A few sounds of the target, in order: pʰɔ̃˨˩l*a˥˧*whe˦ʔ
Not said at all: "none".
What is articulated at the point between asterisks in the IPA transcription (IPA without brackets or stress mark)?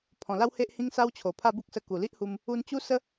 a˦